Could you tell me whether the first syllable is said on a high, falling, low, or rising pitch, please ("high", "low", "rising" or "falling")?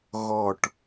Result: falling